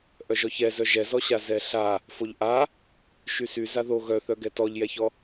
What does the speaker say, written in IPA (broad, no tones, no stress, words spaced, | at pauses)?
ʔœʒɔçɛzœ ʒɛzɔɕa zɛɬa | foʎʔa | ʃysy zaðo ɣœθœɡɛ tɔʎjɛçɔ